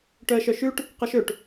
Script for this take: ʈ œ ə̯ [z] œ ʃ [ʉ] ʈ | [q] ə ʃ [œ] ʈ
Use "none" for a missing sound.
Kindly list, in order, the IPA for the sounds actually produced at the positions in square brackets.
ʃ, ʉ, q, ø

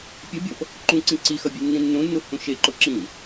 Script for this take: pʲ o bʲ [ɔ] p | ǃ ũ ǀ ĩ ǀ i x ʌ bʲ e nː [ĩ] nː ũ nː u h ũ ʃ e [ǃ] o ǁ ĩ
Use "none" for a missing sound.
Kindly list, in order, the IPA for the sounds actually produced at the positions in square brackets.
ʌ, ĩ, ǃ

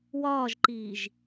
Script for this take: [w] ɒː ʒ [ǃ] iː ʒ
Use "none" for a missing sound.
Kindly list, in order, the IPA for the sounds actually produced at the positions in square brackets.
w, ǃ

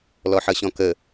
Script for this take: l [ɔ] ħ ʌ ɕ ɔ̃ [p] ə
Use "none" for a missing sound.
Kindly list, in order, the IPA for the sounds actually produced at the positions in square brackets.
ɔ, k

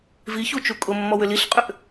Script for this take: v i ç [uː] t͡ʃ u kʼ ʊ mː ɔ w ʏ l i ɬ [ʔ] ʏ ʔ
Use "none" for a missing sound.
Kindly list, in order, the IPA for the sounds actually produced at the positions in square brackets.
u, qʼ

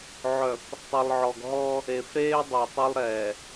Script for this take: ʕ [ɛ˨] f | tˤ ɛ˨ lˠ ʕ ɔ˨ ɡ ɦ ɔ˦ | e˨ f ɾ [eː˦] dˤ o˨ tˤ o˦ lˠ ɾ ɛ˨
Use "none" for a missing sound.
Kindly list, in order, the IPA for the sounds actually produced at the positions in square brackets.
œ˨, eː˦

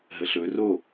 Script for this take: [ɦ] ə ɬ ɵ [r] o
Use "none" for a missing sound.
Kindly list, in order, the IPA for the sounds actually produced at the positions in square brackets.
ɦ, r

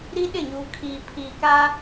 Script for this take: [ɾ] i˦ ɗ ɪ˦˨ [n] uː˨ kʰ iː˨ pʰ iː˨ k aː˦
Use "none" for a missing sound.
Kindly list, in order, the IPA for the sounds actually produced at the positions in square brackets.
ɾ, ɲ

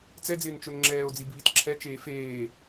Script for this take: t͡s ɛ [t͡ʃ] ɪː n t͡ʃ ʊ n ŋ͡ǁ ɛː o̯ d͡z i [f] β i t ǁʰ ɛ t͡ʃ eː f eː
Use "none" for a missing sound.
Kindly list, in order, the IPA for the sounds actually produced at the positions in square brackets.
d͡z, b

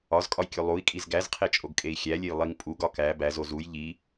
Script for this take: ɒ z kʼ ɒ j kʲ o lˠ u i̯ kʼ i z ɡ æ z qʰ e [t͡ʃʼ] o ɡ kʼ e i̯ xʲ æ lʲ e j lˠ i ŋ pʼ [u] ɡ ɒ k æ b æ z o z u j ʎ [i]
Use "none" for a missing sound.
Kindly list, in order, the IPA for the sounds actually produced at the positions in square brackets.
t͡ʃʼ, u, i

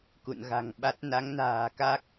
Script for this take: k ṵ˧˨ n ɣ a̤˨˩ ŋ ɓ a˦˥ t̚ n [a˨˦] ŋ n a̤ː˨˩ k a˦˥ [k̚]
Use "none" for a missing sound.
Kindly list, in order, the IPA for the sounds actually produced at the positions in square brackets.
a˨˦, k̚

